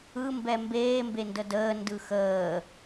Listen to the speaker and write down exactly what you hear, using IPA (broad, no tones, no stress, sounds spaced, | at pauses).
ɯ m b ɛ m b eː m b e n d ə d əː n d ɯ x əː